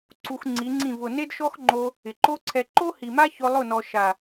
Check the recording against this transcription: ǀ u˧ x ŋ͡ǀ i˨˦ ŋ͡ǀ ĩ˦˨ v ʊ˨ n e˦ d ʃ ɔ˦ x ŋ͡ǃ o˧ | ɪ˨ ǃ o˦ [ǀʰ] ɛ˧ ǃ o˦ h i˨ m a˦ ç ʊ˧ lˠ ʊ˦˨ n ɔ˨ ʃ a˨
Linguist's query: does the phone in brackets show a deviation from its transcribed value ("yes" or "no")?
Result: no